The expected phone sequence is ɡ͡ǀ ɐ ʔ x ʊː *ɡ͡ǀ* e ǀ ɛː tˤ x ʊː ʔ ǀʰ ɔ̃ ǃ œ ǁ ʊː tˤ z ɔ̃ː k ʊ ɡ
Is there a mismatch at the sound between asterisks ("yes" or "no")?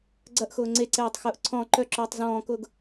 yes